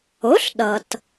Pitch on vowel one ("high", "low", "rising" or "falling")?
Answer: rising